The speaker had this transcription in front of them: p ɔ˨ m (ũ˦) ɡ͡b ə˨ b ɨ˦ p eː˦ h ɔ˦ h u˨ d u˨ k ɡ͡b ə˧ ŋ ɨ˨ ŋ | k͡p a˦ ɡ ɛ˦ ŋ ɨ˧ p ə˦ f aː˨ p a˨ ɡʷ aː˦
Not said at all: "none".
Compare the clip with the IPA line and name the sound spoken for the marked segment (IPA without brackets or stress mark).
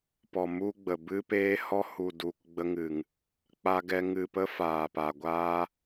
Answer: u˦